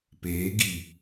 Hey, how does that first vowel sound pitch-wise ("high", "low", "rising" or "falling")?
rising